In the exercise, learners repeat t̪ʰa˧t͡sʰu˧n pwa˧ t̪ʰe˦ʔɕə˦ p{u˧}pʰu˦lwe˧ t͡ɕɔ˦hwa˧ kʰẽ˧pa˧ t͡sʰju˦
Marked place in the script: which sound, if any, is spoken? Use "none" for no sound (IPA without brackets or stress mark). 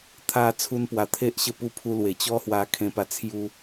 u˦